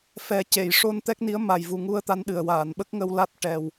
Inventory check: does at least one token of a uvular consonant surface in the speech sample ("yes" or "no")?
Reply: no